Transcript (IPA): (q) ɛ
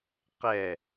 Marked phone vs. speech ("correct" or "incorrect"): correct